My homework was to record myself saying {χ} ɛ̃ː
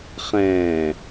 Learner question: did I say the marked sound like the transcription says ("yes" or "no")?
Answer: yes